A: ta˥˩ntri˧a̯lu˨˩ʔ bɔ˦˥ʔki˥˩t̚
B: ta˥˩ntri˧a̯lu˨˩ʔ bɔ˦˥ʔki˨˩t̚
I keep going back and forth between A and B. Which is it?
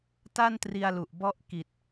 B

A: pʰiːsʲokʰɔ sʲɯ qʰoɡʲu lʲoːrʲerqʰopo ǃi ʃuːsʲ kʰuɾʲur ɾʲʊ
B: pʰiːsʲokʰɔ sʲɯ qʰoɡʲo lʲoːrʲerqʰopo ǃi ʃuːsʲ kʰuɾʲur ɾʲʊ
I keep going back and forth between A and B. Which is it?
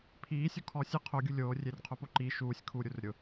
A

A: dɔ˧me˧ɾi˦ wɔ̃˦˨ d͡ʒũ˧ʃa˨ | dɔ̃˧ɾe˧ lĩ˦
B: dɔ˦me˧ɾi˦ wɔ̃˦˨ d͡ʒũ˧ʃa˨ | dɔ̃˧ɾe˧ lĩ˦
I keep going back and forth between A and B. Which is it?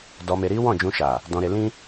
A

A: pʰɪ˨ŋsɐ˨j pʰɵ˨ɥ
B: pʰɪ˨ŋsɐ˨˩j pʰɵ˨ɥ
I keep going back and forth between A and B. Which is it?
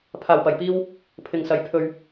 A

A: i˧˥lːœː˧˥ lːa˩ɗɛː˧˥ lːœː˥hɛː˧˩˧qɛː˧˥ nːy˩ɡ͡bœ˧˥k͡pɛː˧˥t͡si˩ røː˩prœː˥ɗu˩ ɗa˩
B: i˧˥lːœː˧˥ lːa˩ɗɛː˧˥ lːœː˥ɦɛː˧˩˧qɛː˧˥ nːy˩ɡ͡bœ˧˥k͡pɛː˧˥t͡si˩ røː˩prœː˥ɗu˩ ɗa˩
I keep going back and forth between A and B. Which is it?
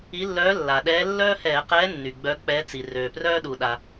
A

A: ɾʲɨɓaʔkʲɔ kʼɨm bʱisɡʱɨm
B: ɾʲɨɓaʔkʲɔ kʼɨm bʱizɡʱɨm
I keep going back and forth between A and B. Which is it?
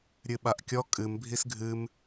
A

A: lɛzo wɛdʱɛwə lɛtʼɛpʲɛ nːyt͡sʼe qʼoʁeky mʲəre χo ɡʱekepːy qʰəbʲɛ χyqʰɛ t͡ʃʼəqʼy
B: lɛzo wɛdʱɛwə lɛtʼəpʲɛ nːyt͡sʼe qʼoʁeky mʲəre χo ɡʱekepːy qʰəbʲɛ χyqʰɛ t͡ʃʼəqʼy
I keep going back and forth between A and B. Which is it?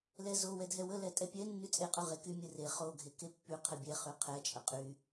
A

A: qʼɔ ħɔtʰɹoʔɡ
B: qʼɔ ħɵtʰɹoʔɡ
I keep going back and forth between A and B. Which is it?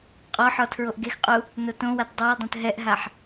A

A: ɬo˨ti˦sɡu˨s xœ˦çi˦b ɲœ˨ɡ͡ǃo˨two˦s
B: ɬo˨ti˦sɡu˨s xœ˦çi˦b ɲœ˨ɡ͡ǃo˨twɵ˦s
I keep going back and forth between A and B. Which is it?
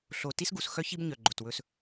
B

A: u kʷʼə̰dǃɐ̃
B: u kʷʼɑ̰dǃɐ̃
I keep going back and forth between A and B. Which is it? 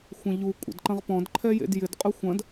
A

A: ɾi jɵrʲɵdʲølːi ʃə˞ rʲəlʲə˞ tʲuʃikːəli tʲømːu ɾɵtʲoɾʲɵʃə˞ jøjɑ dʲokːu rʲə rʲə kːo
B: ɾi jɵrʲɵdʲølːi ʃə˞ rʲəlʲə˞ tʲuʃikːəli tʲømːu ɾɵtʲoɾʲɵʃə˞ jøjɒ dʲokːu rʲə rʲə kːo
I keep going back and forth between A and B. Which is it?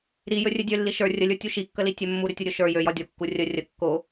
B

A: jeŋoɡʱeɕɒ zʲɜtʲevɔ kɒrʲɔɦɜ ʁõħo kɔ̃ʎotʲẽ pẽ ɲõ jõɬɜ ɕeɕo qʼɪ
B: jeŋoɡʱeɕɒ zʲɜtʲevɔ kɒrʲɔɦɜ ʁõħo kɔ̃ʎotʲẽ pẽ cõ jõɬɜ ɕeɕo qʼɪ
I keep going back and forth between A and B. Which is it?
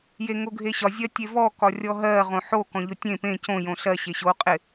B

